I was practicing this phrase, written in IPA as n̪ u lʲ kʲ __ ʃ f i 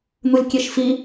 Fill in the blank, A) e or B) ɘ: A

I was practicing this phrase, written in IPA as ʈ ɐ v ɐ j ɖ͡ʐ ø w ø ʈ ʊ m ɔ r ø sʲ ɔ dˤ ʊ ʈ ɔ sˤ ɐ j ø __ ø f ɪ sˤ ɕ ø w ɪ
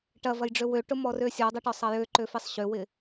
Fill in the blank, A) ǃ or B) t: A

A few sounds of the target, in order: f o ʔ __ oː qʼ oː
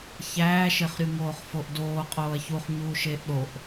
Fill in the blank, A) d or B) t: A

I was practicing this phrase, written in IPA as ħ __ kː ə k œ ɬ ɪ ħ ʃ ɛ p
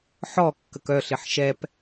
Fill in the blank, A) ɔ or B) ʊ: A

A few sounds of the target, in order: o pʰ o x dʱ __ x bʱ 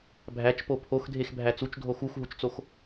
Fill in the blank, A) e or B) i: A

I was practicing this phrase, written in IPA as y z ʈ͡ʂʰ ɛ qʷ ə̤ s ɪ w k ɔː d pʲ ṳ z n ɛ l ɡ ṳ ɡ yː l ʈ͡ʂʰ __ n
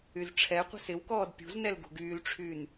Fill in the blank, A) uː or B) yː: B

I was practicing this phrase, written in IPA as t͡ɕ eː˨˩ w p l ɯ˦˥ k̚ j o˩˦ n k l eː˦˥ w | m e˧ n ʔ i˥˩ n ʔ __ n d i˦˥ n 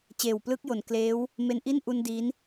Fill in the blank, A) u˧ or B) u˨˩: A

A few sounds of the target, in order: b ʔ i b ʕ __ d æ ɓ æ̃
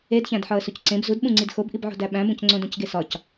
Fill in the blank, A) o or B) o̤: B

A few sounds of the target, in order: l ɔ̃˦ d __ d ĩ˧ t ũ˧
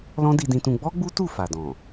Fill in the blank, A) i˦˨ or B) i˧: B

